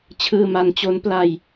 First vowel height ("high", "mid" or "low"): high